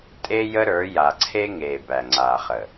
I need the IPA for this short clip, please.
tʼ e˦ j ə˦ ɾ ə˞˨˦ j a˨ ǀʰ e˦ ŋ eː˨ b æ˨ ŋ͡ǀ aː˨ χ ə˨

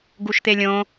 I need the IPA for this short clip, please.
ɡ u ʃ t̪ e lʲ õ

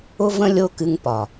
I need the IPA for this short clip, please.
ʊ˦ v ə̃˦ lʲ o˦ k ɨ˧ ŋ p ɒ˨

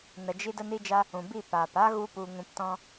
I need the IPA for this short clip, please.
n ə˨ d͡ʒ i˧ d ə˧ n i˧ d͡ʒ a˧ | ũ˨ b i˦˨ p aː˨ p a˦ ɣ u˦ p u˧ ŋ ũ˧ p t ɔ̃˦

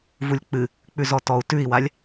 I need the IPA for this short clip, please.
v u lʲ k͡p ɨ | k͡p ʉ z ɔ t ɔ u̯ t ʉ i̯ w a lʲ

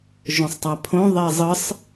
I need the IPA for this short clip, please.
ʒ õ sˤ tˤ a pʰ õ ðˤ e zˤ ɯ sˤ

